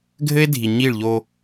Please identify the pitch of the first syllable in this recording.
high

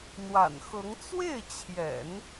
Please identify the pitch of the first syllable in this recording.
low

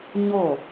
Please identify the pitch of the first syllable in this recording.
falling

